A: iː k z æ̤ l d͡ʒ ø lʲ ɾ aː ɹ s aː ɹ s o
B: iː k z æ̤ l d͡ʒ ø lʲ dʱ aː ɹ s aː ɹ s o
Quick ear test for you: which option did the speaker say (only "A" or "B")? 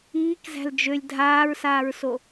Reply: B